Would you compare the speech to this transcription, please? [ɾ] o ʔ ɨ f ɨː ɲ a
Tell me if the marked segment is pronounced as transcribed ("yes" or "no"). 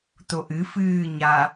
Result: no